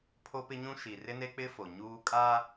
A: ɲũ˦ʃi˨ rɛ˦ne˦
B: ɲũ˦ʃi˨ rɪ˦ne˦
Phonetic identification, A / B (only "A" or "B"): B